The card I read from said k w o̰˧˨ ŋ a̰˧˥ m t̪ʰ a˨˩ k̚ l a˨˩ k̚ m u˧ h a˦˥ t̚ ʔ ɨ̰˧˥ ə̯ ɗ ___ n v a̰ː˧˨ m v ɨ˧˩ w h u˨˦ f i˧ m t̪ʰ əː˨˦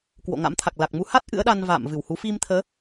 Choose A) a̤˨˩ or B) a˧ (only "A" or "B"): B